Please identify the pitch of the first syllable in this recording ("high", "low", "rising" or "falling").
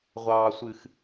low